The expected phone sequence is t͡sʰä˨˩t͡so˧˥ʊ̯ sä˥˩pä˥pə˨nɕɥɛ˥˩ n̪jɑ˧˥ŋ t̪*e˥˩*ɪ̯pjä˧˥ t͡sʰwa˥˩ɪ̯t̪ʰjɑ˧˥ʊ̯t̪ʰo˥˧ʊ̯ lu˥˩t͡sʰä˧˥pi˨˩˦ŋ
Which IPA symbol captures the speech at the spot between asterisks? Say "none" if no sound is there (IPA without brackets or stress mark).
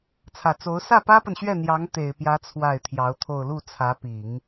e˨˩